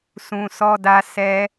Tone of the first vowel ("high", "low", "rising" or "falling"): low